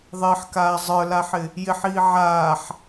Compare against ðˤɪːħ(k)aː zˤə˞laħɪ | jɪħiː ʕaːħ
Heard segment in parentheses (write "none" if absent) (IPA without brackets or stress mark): k